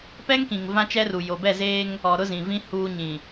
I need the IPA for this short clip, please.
p ɛ˦ ŋ k ĩ˨ ŋ v ã˦ t͡ʃ ɛ˦ r u˨ j o˨ b ɛ˦˨ z eː˦ ŋ | ɔ˨ ɾ ʊ˦ z ĩ˨ v ĩ˦ h uː˦ ɲ ĩ˨

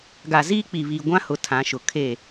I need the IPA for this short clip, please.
ɡ a˨ z iː˦ k͡p i˨ β iː˨ ɡʷ ã˦ h ʊ˨ tʰ ã˨˦ ʃ ʊ˨ kʰ e˦˨

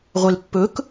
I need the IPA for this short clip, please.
ʁʷ e l pː ɵ k

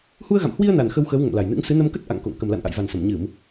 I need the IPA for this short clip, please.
h u˧ ə̯ ɣ a̰˧˨ m h w i˧ ə̯ n a˨˩ n x ə˧ w x əː˨˦ w ŋ ə̰˧˨ m l a˨˩ j n ɨ̰˧˥ ŋ s ɨ˨˦ n ə˧ m k ə˦˥ t̚ ʔ a̰˧˨ ŋ k o̰˧˨ ŋ k ə˨˩ m l a̰˧˨ n ʔ a̰˧˨ j v a˨˩ n s ə˧˩ m ɲ ɨ˧˩˨ m

